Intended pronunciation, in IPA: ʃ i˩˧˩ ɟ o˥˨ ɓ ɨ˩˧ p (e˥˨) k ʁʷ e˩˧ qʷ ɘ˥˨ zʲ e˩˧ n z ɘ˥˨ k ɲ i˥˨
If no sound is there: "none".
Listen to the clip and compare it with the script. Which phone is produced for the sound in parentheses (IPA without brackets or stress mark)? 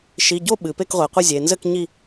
e˥˨